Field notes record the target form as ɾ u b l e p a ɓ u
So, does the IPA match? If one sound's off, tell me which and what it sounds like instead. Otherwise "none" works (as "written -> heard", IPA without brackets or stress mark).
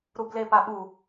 none